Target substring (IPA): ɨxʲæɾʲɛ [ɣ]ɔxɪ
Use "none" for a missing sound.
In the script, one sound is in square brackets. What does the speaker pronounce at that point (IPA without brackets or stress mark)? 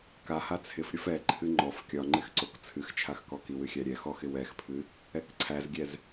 x